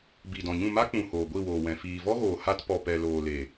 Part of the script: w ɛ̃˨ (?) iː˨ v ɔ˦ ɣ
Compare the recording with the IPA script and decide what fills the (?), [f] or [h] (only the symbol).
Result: f